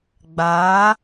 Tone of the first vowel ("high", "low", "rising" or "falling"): rising